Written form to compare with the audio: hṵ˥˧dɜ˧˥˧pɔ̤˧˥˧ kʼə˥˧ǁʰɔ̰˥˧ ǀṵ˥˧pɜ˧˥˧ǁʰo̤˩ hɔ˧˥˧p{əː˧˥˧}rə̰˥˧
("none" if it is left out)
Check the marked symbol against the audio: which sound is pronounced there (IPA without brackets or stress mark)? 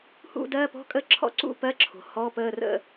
əː˧˥˧